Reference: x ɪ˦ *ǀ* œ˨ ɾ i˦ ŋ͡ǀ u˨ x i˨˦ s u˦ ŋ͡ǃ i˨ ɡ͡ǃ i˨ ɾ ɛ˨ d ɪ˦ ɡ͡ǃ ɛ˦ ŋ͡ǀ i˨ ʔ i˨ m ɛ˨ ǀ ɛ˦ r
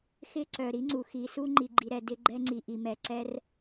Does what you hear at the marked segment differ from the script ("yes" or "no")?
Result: no